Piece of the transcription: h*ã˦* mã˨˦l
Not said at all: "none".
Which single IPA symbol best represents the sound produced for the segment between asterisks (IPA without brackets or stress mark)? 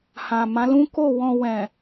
ã˨